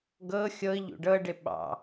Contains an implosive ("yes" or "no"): yes